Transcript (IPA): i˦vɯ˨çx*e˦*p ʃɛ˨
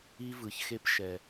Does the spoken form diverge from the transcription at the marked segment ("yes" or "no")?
no